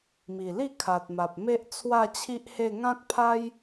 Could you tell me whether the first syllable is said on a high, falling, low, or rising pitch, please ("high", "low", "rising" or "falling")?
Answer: low